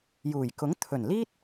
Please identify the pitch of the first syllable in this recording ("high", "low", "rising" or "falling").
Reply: low